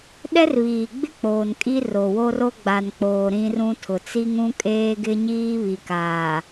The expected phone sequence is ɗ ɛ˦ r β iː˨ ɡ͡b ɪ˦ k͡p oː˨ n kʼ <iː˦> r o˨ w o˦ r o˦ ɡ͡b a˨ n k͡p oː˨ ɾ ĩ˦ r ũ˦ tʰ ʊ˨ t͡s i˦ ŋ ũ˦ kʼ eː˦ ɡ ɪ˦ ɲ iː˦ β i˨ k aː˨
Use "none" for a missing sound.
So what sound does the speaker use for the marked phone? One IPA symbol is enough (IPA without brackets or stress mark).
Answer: i˦